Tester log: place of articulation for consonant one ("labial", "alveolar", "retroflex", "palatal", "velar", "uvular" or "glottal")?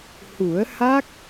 glottal